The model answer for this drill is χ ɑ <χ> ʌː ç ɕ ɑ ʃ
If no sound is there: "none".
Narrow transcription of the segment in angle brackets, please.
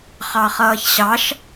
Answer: χ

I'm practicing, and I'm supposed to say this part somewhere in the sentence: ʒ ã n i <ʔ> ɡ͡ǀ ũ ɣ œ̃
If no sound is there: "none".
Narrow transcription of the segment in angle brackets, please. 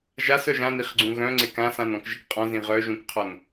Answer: χ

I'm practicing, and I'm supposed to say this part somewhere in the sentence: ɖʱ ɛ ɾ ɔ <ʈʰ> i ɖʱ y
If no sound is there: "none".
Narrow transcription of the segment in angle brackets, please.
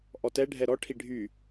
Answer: ʈʰ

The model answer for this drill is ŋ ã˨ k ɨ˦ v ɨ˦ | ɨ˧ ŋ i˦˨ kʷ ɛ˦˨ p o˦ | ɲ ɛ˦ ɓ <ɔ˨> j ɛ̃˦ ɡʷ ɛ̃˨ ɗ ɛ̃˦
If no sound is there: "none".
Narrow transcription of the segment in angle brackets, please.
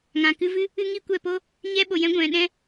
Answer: o˨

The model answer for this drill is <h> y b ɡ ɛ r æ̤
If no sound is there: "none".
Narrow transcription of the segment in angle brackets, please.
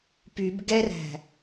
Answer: p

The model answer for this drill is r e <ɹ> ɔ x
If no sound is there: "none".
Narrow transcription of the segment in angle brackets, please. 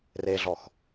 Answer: ɮ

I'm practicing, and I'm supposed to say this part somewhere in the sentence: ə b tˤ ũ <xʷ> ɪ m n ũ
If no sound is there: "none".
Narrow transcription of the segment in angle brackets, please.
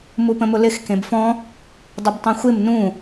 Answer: xʷ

